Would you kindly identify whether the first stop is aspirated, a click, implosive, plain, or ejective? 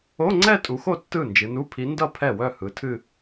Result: click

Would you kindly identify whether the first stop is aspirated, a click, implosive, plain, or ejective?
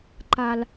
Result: click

